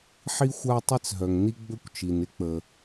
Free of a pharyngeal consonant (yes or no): no